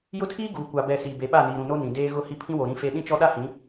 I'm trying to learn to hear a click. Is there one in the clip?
no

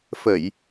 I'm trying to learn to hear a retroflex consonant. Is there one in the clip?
no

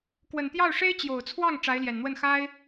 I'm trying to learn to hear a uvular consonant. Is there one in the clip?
no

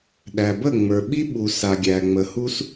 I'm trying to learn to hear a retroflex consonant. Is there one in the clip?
no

